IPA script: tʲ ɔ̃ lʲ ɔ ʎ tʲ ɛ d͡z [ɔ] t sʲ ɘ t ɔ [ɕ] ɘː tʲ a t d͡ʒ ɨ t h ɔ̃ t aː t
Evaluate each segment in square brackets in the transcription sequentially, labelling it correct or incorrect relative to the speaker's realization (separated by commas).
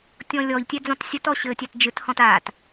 incorrect, correct